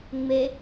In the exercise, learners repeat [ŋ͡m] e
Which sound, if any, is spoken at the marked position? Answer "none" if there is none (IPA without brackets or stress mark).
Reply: ŋ͡m